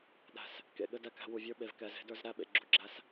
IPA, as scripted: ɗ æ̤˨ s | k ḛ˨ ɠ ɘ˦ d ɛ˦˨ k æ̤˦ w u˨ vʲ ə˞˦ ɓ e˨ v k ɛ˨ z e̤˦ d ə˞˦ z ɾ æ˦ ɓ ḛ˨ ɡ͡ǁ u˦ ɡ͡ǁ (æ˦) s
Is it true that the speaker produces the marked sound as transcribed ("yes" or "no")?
yes